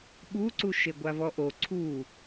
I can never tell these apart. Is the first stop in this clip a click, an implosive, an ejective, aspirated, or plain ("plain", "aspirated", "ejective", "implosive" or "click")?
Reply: implosive